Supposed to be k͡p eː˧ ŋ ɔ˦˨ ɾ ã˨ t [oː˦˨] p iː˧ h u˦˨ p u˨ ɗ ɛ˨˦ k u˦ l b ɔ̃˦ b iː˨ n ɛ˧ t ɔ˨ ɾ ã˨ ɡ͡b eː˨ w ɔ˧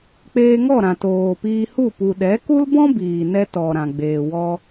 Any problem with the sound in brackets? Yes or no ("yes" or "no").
yes